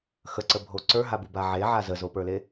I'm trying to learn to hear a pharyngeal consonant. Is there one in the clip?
yes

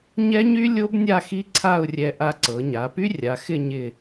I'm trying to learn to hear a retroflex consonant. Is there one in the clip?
no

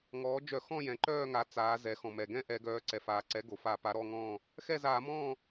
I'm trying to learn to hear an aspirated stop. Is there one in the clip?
no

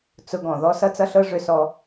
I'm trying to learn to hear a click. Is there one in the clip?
no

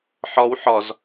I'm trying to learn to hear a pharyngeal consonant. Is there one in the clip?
yes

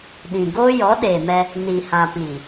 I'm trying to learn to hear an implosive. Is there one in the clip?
yes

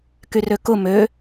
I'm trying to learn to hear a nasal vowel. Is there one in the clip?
no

